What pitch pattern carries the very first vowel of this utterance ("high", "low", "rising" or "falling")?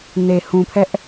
low